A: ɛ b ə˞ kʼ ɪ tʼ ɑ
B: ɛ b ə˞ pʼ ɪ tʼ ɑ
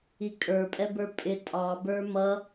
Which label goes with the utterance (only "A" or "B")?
B